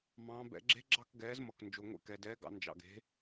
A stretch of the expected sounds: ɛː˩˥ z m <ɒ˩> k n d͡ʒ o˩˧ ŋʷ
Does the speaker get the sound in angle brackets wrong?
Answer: yes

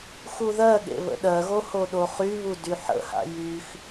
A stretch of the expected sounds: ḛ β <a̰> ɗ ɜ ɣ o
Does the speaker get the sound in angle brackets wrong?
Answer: yes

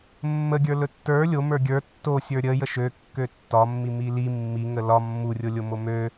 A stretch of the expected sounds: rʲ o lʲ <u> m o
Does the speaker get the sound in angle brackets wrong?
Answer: yes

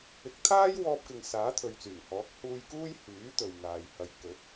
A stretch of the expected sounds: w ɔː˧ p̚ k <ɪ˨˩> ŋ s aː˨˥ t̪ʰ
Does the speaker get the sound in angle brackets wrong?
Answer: yes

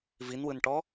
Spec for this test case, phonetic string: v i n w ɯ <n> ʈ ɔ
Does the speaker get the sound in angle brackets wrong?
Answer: no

